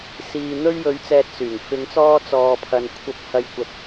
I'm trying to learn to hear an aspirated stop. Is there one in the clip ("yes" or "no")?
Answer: yes